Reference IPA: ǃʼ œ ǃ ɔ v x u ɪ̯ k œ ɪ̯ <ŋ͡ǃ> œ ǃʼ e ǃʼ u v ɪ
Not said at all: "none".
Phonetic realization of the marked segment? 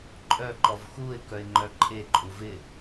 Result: ŋ͡ǃ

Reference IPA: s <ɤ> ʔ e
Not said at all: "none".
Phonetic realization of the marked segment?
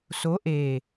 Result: o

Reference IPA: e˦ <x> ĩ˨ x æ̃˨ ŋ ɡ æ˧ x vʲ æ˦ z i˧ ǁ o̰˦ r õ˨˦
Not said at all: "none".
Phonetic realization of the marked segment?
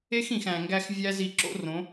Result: x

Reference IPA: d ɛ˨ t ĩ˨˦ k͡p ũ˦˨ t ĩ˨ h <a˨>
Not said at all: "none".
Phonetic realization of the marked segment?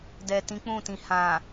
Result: ã˨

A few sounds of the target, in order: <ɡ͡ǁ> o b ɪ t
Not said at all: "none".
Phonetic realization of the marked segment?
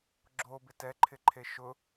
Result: ɡ͡ǁ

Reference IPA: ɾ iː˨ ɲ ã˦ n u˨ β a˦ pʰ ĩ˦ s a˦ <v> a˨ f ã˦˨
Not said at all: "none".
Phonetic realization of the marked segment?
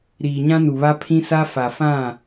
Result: f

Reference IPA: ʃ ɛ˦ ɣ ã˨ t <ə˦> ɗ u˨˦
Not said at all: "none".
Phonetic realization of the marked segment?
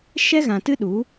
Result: ɨ˦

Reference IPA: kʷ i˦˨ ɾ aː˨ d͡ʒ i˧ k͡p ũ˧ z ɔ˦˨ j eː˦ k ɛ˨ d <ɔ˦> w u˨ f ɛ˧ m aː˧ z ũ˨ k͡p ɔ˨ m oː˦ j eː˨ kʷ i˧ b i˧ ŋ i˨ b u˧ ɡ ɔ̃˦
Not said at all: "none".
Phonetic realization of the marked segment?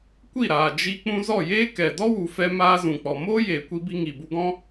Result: ɔ˦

